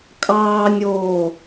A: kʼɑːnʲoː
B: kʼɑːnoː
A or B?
A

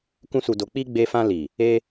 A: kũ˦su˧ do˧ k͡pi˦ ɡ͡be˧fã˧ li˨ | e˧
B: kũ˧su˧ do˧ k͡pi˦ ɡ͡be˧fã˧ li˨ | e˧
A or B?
A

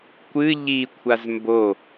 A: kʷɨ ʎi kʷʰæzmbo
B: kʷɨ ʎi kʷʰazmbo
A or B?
B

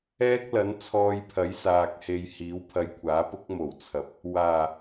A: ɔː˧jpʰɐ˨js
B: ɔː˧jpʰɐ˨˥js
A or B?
B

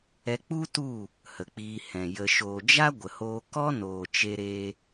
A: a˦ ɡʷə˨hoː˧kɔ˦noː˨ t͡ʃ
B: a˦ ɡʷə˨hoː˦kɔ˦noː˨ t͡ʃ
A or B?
A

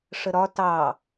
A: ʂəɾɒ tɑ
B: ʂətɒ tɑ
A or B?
A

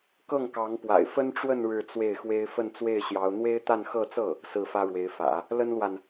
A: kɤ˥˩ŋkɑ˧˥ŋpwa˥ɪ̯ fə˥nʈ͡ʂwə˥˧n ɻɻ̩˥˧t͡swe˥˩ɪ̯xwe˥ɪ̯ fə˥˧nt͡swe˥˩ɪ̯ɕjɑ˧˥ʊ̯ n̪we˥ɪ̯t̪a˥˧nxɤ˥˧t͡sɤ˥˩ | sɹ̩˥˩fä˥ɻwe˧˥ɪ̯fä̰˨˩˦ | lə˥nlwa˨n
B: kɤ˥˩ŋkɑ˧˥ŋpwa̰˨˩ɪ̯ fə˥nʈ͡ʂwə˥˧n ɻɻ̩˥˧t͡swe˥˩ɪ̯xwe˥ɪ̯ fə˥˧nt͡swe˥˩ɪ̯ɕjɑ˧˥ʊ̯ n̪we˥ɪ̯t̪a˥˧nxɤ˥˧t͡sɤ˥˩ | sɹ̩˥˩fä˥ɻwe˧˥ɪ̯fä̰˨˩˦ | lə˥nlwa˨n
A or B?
B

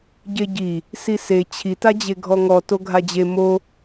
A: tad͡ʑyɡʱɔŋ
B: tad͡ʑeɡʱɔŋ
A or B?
B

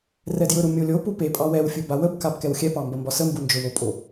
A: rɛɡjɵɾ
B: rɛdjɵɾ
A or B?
B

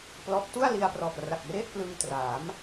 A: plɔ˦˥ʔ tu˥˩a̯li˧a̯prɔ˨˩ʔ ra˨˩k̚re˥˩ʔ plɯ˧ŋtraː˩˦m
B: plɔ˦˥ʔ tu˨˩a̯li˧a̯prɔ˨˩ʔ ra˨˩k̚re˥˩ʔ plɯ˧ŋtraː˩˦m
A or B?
A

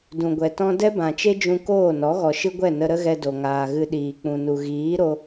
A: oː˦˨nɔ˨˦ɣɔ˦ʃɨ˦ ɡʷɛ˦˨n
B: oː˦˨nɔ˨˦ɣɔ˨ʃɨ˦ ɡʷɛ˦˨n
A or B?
B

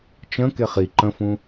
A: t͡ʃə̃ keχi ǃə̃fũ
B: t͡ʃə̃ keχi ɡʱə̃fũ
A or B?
A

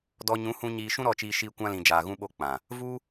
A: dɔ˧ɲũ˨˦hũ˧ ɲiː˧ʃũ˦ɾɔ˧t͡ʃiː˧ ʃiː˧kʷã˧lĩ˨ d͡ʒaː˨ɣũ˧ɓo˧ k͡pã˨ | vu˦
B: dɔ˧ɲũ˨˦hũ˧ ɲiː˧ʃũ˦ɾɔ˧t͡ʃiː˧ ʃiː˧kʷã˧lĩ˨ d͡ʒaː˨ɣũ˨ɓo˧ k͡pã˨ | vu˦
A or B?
A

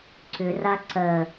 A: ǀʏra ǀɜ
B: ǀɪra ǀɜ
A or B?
A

